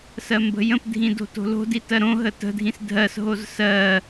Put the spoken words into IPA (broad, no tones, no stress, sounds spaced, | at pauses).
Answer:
s ɜ m b ə̤ j ə̃ p dʱ ĩ d o̤ t o̤ l o̤ d i t ɜ ɾ õ ɦ ə t ə̤ dʱ ĩ s dʱ ɜ s ɦ o z s ɜ